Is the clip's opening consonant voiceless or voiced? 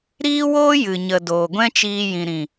voiced